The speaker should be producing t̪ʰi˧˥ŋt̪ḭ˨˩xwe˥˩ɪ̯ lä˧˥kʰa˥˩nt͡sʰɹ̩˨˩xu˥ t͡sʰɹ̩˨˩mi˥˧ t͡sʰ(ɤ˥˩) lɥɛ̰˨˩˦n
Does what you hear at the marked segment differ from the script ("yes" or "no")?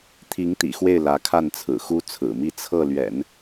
no